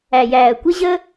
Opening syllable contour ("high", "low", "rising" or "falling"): low